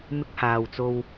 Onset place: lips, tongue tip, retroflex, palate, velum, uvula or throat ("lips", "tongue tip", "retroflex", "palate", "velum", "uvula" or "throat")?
lips